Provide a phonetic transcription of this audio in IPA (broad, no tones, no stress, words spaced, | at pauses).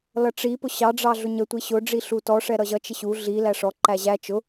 lʌʈ͡ʂi pʊɕɑ ɖ͡ʐɑɮʊɲə tʷiɕʊ ɖ͡ʐiɬutɔ ʂɛɾʌʑʌ t͡ʃɪɕu ɮi læʂɔ ǃæʑæ t͡ʃʊ